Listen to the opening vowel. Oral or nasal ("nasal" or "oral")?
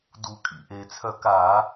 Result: oral